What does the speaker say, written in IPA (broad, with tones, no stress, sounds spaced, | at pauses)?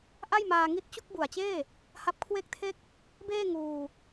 ʔ a˥˩ j m aː˧ ŋ i˦˥ t̚ t͡ɕ u˥˩ k̚ b u˨˩ a̯ t͡ɕ eː˥˩ | h a˦˥ p̚ kʰ w e˥˩ k̚ tʰ e˥˩ k̚ | b eː˥˩ ŋ uː˧